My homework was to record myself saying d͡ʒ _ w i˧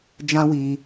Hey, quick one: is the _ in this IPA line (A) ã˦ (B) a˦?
A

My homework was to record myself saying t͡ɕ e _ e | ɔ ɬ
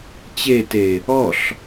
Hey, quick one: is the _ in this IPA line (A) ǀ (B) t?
B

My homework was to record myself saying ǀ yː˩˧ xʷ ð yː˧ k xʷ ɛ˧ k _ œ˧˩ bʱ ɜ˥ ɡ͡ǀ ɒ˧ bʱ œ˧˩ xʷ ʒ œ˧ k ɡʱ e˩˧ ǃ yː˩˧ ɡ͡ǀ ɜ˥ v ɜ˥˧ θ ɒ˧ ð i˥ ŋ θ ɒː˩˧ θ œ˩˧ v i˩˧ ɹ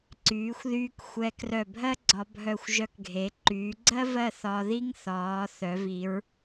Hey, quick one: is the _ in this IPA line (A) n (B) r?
B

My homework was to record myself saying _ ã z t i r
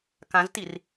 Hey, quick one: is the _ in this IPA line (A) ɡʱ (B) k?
B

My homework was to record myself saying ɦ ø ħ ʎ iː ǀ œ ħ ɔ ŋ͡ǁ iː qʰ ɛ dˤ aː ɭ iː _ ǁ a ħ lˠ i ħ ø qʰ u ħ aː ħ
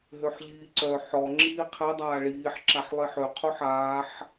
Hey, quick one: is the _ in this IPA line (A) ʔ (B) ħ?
B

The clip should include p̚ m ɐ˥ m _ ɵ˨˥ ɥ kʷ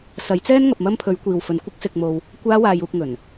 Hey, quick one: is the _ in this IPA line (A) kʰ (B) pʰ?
B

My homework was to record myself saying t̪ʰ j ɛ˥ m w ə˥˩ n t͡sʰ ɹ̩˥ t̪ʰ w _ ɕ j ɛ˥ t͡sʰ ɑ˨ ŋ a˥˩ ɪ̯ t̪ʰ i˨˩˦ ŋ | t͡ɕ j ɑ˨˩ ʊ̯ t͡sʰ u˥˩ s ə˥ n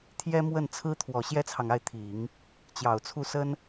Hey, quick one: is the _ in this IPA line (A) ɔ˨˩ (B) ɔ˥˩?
A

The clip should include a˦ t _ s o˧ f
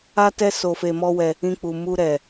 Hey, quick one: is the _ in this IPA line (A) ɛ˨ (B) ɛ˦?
B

